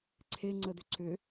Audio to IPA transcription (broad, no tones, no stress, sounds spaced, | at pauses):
ǀʰ e ŋ͡ǀ ə d̪ ʏ ǀ ʏ